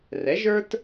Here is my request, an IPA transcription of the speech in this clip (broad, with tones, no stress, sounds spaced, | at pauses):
r ɛ˩˥ ʒ ə˞˥ t